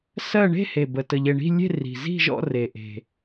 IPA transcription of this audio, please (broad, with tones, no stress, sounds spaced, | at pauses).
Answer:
s ɜ˥˧ ɳ e̤˥˧ h e˨˩ b ə˨˩ t ə˨˩ ʎ e˨˩ ɳ i̤˥˧ lʲ e̤˥˧ r i̤˨˩ z i̤˥˧ ʒ ɔ̰˥˧ r e˨˩ ʔ e̤˨˩